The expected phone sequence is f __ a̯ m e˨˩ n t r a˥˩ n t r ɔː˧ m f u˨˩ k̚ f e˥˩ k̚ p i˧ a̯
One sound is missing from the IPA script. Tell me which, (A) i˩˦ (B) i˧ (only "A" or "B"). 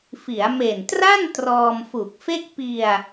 A